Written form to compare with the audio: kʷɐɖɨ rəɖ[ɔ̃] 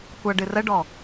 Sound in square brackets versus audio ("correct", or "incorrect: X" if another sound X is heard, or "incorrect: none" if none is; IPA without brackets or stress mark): incorrect: ɔ